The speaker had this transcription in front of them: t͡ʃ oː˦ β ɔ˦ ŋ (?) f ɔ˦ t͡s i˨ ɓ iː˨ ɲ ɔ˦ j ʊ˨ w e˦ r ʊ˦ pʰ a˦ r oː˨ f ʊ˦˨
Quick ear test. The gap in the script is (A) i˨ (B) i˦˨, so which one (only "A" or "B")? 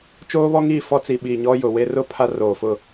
B